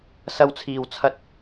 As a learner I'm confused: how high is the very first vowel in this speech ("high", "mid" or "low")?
low